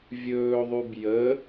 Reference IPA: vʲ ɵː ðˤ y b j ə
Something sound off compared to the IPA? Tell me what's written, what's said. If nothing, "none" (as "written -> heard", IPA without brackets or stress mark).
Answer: none